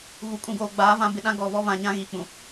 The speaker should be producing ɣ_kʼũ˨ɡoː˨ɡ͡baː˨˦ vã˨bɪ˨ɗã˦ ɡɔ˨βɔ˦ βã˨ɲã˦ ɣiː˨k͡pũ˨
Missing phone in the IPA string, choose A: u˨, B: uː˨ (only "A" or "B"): A